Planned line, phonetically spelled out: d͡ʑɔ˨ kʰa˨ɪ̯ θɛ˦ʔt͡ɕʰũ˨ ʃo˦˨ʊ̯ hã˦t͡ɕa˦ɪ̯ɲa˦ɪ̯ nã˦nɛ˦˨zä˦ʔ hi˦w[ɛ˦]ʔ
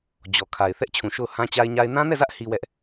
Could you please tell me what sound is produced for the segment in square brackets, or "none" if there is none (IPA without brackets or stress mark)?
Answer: ɛ˦